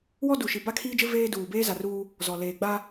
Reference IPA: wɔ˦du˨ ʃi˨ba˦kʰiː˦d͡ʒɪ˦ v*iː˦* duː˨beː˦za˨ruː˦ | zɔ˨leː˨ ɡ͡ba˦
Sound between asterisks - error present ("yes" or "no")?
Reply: yes